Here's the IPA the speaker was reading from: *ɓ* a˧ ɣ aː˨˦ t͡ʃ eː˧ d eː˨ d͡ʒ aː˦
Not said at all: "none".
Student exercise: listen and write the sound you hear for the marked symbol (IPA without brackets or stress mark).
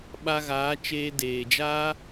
ɓ